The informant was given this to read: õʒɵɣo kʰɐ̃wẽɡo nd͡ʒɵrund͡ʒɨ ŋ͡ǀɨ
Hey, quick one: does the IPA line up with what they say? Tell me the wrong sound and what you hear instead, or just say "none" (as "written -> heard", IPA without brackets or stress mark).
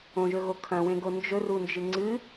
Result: none